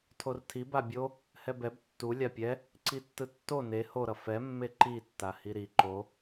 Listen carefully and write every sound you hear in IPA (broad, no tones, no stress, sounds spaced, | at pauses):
tʰ o r tʰ i b a bʲ o | h ɛ b ɛ b tː u lʲ a pʲ ɛ | ǀ i tː ɯ tː o n e h o ɾ ʌ f ɛ mː e ǃ i tː a h i ɾ i ǃ o